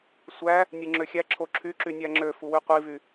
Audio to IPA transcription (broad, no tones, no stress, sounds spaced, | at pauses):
sʷ æ | nʲ ɯ ŋ͡ǁ ø xʲ æ ǁʰ o ǁʰ y ǁ y nʲ æ ŋ͡ǁ ø f u w y qʷ i v y